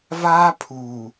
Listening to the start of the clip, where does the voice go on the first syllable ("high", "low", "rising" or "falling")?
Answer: high